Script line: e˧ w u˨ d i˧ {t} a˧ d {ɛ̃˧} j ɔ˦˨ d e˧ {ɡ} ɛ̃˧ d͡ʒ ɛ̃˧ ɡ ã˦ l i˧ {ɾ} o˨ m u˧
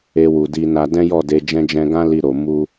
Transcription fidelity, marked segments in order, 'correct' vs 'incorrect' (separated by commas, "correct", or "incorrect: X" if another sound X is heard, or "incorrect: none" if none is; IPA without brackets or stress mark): incorrect: n, incorrect: ɛ̃˦, incorrect: d͡ʒ, correct